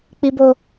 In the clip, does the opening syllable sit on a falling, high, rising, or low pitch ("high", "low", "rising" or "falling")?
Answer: high